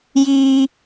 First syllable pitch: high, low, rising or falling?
high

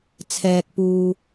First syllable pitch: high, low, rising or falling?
low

